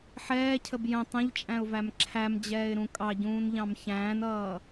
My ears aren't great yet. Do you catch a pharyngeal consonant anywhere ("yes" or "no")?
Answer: yes